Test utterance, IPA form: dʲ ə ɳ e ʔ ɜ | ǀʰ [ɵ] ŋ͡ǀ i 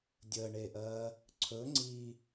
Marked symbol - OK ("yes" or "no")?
yes